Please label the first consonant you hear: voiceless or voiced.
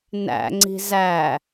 voiced